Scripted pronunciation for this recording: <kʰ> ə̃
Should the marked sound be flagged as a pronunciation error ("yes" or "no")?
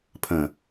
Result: yes